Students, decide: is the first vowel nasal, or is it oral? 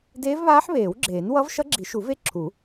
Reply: oral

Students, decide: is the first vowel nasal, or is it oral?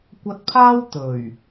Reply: oral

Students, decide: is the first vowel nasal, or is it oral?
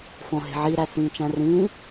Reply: nasal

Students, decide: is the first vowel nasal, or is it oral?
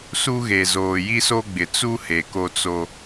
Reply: oral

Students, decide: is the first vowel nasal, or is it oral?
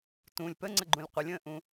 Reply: nasal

